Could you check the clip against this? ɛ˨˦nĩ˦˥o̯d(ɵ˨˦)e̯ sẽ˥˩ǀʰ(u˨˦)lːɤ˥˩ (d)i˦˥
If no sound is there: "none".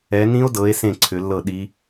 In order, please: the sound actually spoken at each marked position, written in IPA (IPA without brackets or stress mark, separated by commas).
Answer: ɤ˨˦, ʏ˨˦, ɗ